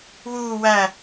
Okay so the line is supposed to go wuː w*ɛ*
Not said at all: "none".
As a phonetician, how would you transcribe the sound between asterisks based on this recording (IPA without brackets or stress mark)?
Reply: æ